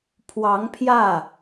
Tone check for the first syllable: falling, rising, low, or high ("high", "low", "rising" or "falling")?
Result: rising